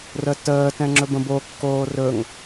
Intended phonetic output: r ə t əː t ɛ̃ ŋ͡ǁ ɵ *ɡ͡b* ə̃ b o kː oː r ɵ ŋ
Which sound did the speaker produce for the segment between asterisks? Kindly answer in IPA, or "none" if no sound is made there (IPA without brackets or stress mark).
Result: b